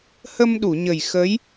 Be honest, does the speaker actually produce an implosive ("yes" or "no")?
yes